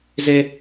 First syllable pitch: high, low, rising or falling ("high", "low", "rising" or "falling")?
high